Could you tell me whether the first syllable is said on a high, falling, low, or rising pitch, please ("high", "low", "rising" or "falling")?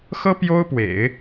high